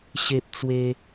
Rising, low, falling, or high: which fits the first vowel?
high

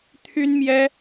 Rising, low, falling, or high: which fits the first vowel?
high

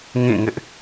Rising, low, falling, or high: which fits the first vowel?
falling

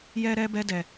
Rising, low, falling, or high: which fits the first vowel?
high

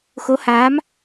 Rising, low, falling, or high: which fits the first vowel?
rising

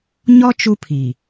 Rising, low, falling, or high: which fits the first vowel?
high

